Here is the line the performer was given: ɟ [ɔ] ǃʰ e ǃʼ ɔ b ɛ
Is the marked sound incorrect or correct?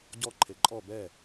correct